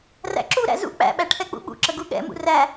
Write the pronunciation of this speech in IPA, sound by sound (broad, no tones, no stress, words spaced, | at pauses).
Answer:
ræ̰ǁuɾæ̰ zṵ k͡pæ̰ɓæ ʈʰɛk͡pṵɓṵǁə ɡuɠɛ̰mṵ ræ